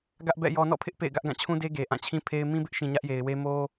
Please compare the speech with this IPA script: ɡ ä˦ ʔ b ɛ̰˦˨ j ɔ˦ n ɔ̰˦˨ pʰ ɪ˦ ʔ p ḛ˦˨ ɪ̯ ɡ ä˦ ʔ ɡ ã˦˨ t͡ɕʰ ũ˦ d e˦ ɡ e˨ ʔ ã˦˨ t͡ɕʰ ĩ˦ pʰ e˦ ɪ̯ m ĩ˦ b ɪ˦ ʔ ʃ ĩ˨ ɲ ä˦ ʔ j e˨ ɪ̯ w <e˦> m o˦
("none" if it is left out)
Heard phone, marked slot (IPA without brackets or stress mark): e˦